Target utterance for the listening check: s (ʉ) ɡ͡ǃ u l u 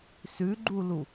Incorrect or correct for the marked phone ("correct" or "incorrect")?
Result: correct